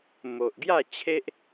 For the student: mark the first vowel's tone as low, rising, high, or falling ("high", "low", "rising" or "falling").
low